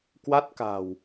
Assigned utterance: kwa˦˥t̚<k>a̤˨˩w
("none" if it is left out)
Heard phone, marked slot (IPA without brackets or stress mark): k